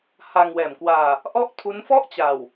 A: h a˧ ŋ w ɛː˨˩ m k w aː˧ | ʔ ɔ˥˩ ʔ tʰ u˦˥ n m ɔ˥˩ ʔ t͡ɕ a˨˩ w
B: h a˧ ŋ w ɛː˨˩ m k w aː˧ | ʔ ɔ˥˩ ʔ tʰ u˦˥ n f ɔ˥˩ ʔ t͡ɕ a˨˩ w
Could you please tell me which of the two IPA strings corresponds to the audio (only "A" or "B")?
B